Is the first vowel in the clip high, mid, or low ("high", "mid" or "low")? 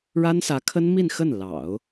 low